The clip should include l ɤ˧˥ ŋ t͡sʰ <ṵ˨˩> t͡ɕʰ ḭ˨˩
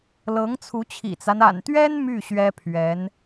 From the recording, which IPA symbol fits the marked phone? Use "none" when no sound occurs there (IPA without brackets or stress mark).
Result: u˧˥